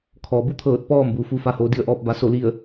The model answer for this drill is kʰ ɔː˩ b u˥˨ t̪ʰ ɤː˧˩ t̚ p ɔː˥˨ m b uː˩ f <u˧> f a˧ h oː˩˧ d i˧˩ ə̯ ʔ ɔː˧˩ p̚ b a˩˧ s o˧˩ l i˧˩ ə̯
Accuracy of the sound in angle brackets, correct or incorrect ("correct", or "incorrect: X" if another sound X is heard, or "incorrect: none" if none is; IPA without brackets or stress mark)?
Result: correct